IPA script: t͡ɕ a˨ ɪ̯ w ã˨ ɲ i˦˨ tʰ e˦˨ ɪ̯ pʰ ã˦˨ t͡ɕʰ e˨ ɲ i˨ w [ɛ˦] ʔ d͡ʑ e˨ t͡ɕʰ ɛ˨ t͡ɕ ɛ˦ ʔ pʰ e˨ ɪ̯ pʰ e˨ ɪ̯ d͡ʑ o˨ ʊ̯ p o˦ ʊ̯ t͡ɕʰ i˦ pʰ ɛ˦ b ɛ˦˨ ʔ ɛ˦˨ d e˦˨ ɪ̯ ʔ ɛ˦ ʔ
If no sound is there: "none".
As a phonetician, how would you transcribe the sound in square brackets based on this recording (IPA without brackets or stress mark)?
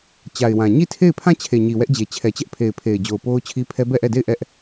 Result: ɛ˦